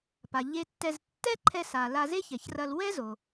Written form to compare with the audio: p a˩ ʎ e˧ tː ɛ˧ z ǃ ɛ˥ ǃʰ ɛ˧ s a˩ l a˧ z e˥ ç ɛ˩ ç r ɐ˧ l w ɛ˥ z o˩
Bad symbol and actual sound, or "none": ǃ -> tː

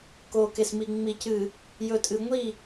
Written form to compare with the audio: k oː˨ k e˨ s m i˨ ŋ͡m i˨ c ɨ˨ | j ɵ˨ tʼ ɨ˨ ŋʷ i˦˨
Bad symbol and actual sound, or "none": none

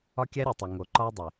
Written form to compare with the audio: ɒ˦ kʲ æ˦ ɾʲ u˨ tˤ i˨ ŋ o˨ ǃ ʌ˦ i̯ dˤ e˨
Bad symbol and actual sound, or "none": ʌ˦ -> ɒ˦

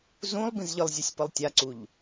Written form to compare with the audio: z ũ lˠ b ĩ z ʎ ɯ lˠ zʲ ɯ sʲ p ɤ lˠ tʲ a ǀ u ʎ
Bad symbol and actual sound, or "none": none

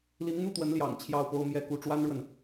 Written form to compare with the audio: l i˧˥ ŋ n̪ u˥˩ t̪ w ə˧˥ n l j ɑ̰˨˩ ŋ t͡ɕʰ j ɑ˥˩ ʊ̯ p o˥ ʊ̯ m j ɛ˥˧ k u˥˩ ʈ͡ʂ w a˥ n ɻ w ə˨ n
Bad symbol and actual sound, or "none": none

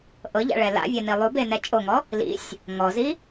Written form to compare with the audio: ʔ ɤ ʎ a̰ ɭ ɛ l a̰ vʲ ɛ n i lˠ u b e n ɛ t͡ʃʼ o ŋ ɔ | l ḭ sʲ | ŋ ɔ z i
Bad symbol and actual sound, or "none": none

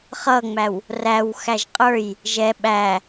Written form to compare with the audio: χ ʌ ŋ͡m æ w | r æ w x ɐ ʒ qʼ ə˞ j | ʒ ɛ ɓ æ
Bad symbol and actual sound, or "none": ɐ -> æ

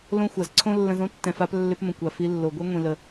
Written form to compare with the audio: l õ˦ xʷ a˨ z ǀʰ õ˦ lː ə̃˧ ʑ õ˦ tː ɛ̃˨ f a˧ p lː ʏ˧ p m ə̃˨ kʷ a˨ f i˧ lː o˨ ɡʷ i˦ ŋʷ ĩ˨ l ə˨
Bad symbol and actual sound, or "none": ʑ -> z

